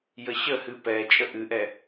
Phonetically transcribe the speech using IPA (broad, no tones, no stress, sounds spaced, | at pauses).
j ə ɕ ə h ɨ p ɛ t͡ʃʼ ə ʔ ɨ ʔ ɛ